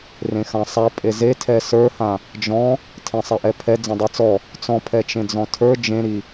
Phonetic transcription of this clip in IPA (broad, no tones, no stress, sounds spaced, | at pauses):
r ẽ x ã sˤ a pʼ e z e tʰ ɛ s ə˞ h ã | d͡ʒ ɔ̃ | tʰ ẽ sˤ ɛ ʔ ɛ pʰ ɛ d͡z ẽ dˤ i t͡s ɔ | t͡s ɔ̃ pʰ ɛ t͡ʃ ẽ d͡z ɔ̃ tʰ ə˞ d͡ʒ ẽ ɾ i